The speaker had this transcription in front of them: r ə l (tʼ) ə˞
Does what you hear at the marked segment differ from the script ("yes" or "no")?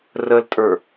no